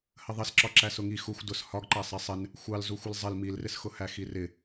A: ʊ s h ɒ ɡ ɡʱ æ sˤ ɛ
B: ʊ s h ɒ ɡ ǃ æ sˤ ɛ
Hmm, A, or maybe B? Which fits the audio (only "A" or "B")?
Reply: B